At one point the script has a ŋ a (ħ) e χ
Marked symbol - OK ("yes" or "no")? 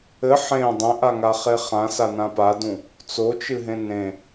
no